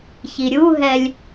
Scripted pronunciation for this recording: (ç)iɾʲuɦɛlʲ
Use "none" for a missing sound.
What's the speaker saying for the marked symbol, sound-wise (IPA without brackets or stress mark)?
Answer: ç